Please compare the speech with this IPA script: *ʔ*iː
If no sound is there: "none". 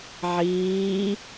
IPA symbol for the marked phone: ʕ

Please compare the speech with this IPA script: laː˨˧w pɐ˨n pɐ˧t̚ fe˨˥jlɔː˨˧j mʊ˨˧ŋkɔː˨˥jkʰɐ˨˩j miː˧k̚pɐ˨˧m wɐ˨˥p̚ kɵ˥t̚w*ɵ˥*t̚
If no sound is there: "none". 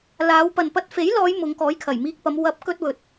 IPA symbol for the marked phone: ɵ˧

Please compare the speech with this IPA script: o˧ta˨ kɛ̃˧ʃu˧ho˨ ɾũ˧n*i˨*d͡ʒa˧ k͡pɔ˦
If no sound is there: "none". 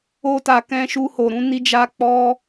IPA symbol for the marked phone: i˧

